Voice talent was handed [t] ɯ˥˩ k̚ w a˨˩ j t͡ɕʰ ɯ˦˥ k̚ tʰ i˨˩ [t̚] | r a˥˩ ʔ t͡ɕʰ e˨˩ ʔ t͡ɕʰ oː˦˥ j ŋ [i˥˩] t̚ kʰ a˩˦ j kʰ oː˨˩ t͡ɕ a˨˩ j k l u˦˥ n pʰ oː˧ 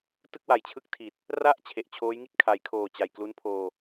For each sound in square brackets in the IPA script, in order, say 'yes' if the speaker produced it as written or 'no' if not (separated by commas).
yes, yes, yes